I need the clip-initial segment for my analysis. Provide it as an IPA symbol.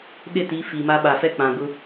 ɗ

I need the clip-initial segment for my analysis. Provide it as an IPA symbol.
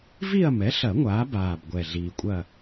v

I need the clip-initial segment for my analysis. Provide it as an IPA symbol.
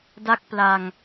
d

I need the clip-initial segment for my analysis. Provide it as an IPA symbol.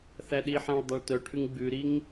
θ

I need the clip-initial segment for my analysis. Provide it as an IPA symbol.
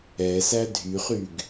ɛ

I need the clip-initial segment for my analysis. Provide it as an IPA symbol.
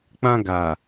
k͡p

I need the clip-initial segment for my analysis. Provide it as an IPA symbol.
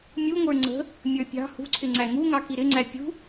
mʲ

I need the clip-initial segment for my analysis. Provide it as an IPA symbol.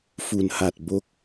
f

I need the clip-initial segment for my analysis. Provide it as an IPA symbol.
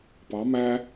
p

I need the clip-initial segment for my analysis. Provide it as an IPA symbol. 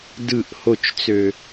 d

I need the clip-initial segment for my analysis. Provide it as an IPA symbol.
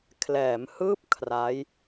kʰ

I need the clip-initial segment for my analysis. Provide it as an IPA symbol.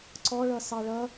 ǀ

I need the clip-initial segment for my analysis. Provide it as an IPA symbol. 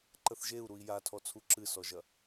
ǃ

